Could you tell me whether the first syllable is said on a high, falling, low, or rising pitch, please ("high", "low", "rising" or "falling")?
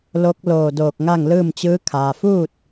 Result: rising